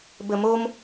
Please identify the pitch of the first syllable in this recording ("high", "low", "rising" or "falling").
low